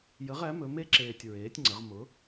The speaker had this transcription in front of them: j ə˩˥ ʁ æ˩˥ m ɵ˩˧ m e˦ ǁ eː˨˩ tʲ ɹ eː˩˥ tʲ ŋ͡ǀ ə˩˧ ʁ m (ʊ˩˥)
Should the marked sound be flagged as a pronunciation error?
no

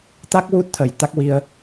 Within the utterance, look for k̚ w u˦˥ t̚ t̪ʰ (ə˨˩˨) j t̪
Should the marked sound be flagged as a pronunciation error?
yes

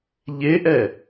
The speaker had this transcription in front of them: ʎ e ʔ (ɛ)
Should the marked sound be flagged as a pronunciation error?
no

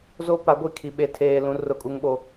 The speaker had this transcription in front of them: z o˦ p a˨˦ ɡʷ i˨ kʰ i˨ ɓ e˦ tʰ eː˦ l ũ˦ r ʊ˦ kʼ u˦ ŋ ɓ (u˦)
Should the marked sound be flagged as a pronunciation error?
yes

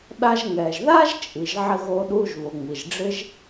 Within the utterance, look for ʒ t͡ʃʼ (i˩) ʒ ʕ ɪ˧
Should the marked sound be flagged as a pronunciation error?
no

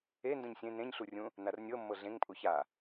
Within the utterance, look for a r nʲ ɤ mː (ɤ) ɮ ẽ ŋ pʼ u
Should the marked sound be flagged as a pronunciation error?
no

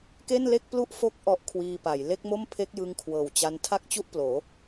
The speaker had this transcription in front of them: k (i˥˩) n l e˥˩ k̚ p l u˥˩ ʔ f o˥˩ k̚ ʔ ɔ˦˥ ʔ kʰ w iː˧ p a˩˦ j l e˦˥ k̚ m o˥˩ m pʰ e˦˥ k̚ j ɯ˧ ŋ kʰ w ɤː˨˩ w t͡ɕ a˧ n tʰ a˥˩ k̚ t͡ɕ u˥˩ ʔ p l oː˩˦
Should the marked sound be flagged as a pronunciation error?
yes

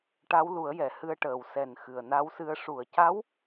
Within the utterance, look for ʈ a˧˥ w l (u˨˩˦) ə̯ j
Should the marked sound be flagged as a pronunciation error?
no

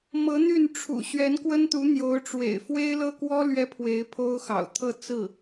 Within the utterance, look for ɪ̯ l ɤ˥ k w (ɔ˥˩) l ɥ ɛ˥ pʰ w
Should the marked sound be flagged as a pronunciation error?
yes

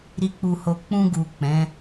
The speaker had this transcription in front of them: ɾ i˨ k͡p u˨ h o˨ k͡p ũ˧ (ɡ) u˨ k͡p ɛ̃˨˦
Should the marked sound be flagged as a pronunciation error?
no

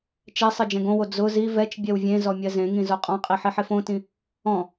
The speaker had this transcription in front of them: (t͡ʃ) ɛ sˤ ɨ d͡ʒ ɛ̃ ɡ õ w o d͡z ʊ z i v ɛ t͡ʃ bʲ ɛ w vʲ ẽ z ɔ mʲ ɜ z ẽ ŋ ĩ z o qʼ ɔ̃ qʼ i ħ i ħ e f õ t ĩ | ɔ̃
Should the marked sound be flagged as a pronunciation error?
no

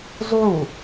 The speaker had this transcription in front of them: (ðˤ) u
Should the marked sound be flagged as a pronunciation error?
yes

